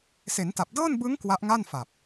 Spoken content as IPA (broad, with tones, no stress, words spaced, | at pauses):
se˩˦nta˨˩p̚dɤː˥˩n bɯ˦˥ŋ kwa˦˥ʔŋa˥˩nfa˨˩p̚